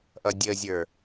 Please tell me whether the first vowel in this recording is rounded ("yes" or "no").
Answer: no